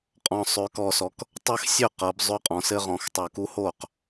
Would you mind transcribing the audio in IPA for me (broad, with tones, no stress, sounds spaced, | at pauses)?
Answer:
qʼ ɔ̃˨˩ sˤ ø˩˧ k ɔ˨˩ s ɔ˩˧ k | tˤ ɘ˦ x sʲ ø˥˩ q ɤ˩˧ b zˤ ø˦ qʼ ɔ̃˩˧ s ɘ˦ ʁ ɔ̃˩˧ x tˤ o˨˩ k u˦ h o˥˩ q